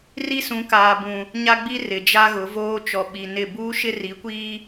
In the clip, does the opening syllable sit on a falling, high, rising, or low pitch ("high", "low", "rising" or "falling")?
high